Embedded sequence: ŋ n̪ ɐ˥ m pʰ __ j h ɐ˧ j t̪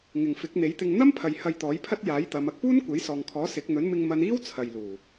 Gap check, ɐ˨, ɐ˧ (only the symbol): ɐ˨